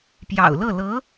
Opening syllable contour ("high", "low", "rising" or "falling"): low